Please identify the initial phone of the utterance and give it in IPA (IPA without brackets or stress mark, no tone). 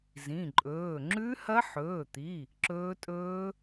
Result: z